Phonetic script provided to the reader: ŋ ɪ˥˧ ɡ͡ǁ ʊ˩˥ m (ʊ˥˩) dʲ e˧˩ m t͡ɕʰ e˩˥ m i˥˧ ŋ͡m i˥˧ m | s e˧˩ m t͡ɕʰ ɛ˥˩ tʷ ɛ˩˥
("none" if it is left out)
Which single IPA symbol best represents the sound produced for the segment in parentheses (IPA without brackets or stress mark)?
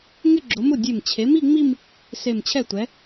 ʊ˥˩